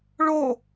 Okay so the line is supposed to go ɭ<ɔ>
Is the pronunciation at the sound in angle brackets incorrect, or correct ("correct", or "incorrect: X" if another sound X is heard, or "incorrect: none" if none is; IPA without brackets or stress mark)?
incorrect: o